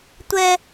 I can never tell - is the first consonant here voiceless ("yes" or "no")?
yes